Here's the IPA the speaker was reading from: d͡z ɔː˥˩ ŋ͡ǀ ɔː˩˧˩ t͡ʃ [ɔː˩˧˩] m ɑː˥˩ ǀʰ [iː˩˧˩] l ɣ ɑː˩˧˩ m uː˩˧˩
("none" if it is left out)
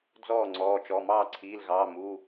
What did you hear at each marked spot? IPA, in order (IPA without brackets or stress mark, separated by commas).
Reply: ɔ˩˧˩, iː˩˧˩